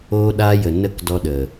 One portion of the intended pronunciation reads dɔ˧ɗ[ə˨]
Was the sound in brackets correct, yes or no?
yes